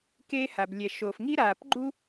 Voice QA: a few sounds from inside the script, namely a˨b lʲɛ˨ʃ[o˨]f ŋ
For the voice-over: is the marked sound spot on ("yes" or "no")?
yes